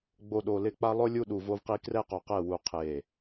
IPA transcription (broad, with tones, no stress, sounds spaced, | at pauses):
ɡ͡b o˨ ɗ o˨ l ɪ˦˨ k͡p a˦ lˠ ʊ˦ lʲ u˦ ɗ u˨ v o˦ v q i˦ k r ɛ˦ q o˨ q ɛ˦˨ w u˦ qʰ e˦˨